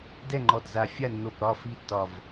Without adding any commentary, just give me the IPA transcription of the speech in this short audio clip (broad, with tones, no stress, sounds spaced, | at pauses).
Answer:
d ɛ˥˨ ŋ͡ǃ ɔ˧˩ d z a˧˩ fʲ a˥˨ nː o˧˩ p ɾ ɒ˥˨ f i˥˨ tː ɒ˧˩ v